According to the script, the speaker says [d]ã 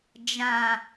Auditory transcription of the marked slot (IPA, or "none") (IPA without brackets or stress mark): d͡ʒ